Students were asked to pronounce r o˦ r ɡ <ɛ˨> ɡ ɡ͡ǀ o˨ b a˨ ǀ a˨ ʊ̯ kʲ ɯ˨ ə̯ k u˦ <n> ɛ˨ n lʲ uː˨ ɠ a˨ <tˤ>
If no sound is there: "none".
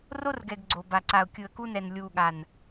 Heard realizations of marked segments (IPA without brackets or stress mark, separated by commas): ɛ˨, n, n